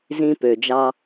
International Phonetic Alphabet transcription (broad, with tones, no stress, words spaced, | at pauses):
zĩ˧ pø˩d͡ʒɑ˧